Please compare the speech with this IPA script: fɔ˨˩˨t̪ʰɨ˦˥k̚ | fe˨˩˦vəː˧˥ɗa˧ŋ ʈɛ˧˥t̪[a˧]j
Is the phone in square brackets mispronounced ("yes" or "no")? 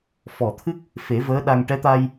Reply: no